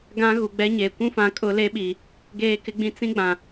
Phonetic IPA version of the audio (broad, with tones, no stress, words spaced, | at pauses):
ɡã˦ɣu˨ɡ͡bɛ˦ɲe˨ kʷũ˦fã˨˦ kʼʊ˦le˦ɓi˨ | ɡeː˦kɪ˦ɡ͡bĩ˦ t͡sĩ˦ɡ͡bã˨